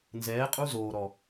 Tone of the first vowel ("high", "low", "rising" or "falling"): rising